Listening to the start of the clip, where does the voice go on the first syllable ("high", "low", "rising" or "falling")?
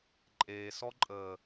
low